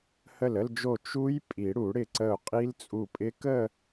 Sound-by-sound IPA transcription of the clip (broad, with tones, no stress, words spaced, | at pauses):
hə˧˩lə˥˧ld͡ʒo˧˩ t͡ʃu˦˥j pʼi˨˩˦ ɽu˨˩˦ɽɪ˧˩ǀə˧˩ʊ̯ qʼi˦˥lt͡sʼu˧˩pʼɪ˦˥ kə˥˧